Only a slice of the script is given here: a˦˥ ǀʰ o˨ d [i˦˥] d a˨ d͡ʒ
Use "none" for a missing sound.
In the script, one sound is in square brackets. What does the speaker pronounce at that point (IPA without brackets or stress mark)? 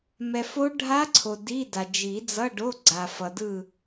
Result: i˧˥˧